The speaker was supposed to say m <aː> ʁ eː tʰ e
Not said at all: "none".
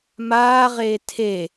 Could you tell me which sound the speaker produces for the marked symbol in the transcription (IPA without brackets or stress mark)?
aː